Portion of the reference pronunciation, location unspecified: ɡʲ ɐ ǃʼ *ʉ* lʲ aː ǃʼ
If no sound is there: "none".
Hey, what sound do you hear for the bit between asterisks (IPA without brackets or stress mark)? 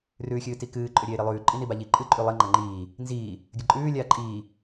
ʉː